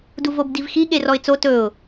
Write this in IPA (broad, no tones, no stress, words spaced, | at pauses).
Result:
duvobdivxi ɠerɔɪ̯t͡so tɵʊ̯